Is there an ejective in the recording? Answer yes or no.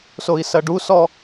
no